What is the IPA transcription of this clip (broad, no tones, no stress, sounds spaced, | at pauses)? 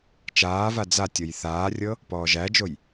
t͡ʃ aː v a d͡z a tʲ ɤ j θ aː rʲ ɤ | p ɔː ʒ æ d͡ʒ o j